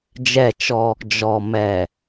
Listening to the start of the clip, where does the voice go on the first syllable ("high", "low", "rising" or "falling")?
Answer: falling